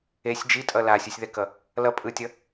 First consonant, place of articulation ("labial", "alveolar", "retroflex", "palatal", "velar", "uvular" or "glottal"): alveolar